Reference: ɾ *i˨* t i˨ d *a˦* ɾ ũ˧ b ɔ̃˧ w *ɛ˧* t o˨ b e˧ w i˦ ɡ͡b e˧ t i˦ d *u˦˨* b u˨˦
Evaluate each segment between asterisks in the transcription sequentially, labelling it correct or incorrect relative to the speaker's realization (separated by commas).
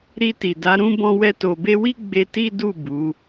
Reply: incorrect, incorrect, correct, correct